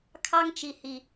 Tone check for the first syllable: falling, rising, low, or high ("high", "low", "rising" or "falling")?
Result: high